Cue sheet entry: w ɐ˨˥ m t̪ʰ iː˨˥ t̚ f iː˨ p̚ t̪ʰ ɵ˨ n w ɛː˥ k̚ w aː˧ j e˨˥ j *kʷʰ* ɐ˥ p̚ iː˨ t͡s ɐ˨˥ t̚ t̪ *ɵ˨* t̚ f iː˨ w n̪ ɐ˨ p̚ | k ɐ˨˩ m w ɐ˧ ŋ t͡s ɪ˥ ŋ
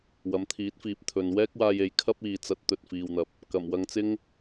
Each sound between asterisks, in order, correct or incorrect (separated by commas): incorrect, correct